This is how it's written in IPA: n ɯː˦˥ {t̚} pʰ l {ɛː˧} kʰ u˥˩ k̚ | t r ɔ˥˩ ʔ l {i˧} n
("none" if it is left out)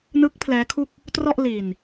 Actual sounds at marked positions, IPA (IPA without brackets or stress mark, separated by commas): k̚, ɛː˦˥, i˧